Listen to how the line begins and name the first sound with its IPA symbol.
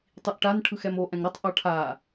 tˤ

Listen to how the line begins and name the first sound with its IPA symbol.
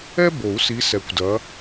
ɛ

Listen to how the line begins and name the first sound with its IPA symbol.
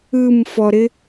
ɯ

